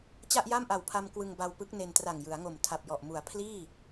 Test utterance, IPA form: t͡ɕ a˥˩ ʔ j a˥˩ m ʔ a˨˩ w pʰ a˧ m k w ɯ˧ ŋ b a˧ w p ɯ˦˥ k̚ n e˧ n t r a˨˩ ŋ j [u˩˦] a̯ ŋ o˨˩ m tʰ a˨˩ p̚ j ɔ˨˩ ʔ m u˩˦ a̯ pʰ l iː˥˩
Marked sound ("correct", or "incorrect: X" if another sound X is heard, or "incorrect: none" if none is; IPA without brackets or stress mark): incorrect: ɯ˩˦